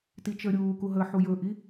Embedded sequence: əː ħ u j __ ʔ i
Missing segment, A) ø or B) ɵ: B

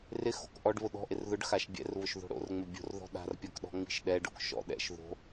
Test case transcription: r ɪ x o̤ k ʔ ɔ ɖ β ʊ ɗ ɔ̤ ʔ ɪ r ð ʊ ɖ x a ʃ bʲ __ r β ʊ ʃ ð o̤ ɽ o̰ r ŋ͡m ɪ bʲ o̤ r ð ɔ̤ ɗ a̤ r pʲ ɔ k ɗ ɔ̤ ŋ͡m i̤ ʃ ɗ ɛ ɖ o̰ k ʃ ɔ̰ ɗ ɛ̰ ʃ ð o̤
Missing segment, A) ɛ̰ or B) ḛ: A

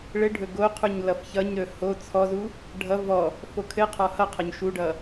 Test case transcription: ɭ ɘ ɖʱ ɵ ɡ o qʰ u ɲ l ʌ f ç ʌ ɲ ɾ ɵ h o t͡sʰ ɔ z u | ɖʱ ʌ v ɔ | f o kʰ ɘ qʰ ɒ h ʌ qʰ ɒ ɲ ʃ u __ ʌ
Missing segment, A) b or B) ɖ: B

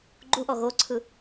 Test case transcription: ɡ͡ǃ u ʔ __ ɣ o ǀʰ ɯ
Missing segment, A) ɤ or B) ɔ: B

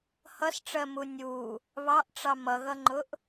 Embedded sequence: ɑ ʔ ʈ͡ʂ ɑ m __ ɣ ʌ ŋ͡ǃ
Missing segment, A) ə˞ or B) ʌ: B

